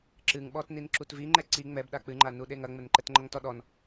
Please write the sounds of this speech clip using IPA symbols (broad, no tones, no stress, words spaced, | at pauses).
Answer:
ǁɨŋɓɔtnin ǁutviŋ͡ǃɛ ǀi ŋ͡mɛbɗa k͡pɨŋ͡ǃanuɗe ŋɐŋ͡mɘnǃɛtŋ͡ǃɐŋ tɔɗɔn